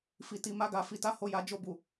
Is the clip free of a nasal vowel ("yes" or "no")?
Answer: yes